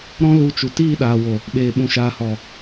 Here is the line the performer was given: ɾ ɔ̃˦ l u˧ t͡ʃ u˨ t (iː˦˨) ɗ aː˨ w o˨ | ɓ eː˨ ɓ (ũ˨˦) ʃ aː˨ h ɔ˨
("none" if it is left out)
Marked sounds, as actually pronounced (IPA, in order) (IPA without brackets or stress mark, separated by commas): iː˦˨, ũ˨